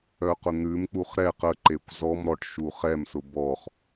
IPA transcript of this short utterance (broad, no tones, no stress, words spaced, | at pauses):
œqʊn̪ʉmk͡puχ ɾɛ qəǃekʷ zɔm ɾɔʈ ʃuχɛmsʊ bɔχ